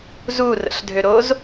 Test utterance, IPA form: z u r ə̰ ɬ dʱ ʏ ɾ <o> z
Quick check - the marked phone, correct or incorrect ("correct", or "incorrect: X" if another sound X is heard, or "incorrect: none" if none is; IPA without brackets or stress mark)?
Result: correct